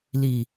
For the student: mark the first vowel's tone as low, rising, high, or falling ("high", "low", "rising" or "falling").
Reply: low